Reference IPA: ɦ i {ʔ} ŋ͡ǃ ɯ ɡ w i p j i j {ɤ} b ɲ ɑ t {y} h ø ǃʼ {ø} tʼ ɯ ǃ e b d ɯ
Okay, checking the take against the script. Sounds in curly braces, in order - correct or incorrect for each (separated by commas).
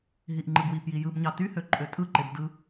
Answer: correct, incorrect, correct, correct